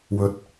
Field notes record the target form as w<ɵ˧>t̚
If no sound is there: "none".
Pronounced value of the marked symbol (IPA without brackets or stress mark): ɵ˧